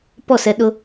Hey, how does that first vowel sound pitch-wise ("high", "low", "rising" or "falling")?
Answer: falling